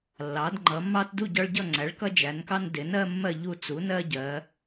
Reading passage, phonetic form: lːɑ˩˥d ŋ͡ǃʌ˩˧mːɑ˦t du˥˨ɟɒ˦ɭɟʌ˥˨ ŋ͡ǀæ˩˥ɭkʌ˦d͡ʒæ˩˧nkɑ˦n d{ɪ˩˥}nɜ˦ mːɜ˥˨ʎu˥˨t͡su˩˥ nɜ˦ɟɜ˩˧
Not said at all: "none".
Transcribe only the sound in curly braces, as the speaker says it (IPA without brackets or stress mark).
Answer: ɪ˩˥